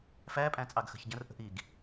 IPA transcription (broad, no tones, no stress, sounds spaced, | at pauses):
f æ pʼ æ̃ t͡sʼ ɑ ɡ x ə̤ ç ɟ ə̃ r ʔ ə̤ ʔ i ɡ